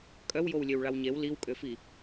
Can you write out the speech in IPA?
kʼ œ w j o w lʲ ø w ɭ a w ɲ e w l i w kʼ ø f i

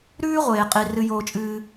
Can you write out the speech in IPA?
ɾ ʉː˥ ʁʷ eː˩ qʼ i˩ r ɨ˧ j oː˧ t͡ʃʼ ɨː˧

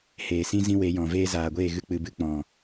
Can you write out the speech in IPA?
h eː˨ s ĩ˦ z ĩ˧ w e˨˦ j ɔ̃˨ v eː˦ z aː˨ ɡʷ eː˦˨ ɣ ɨ˧ k͡p ɨ˨ b ɨ˧ k͡p ɔ̃˨

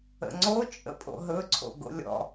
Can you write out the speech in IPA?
ə̰ ŋ͡ǀ o t͡ʃʼ ə̰ pʼ o̰ ɦ ɵ ǀʰ o̰ ɡ o̰ lʲ ɔ̰

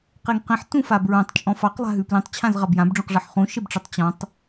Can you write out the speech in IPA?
q e ŋ q ẽ ħ t ũ f a b ɹ õ tˤ t͡ʃʼ ɔ̃ f ɑ q lˠ a̤ ɦ ʉ p l ẽ tˤ t͡ɕʰ ã z ʁ a b j ã b ɖ͡ʐ ũ q ʐ ɑ ħ χ ũ ʃ e b ʈ͡ʂ ə tˤ t͡ɕ ɔ̃ tˤ

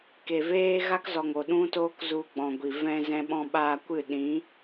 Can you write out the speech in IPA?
k e˨ v eː˦ ɣ a˦ k z ɔ˨ ŋ o˨ ɗ ũ˦ t oː˦ k z u˧ ɡ͡b ɔ̃˨ ɡʷ i˨ v ɛ̃˧ z ɛ̃˧ ɓ ɔ̃˧ ɓ aː˧ kʷ ɨ˦˨ ɗ ĩ˨˦

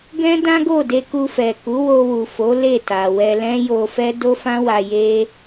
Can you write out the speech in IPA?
ɡ ɛ̃˦ d ã˦ ɡ o˦˨ d e˧ k u˧ f ɛ˨ k u˨˦ w o˧ w u˨ f o˨˦ l e˦˨ t a˨ w ɛ˧ l ɛ̃˦ j o˧ f ɛ˦ d o˦ f ã˦ w a˧ j e˦

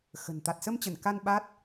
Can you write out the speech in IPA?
x ə̤˨˩ n t̪ a˨˩ t̚ s ə˧ m t͡ɕ ə˧˩ n k a˧ n ɓ a˦˥ t̚

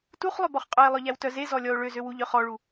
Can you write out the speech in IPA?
t u χ lˠ ø b ɔ χ qʼ œ e̯ lˠ œ ʎ æ w t œ z e z ɔ lʲ ɔ o̯ ɭ ø z ø w u ʎ œ χ ɔ ɭ u

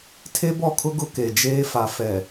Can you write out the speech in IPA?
tʰ e˦ b ɔ˦˨ kʰ ʊ˦ ɡ ʊ˦ k e˨ d͡ʒ eː˦ f a˨ f ɛ˨

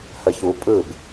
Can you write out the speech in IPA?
h ə ç u pʼ ɯ b

